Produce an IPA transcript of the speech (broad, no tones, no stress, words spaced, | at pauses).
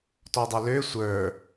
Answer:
tɔdˤølø sʷə˞